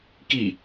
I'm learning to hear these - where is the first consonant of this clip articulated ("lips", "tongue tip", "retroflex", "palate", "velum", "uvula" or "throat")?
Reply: velum